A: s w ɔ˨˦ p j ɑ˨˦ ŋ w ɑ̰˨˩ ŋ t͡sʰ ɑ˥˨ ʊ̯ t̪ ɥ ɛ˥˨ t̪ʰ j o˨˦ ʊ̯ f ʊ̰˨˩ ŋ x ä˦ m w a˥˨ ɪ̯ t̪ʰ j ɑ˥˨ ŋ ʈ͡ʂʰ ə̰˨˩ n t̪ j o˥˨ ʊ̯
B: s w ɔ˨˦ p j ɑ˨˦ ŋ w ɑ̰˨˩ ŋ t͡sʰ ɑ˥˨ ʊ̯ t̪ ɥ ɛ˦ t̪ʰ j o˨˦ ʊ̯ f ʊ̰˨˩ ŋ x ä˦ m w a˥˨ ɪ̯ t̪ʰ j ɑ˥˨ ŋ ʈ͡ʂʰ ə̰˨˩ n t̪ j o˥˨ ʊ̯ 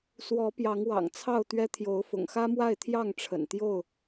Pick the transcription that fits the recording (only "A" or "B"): B